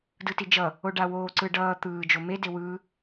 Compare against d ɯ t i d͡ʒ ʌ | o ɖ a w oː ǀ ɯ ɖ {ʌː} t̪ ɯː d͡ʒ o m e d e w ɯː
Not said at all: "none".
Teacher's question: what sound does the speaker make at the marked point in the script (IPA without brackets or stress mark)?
ʌː